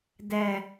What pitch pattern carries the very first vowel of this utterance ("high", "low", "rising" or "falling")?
low